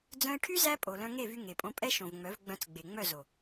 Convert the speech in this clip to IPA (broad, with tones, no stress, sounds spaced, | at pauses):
d͡z œ̃˧ e̯ ʈʰ y˦ z æ˦ pʼ o˨ l œ̃˧ ŋ e˦˨ v y˧ ŋ e˨ pʼ õ˧ pʼ ɛ˦ ʃ õ˨ v ŋ͡m œ˨˦ v ɡ͡b œ̃˧ t͡s ɡ͡b e˨ ŋ͡m œ˦˨ z o˨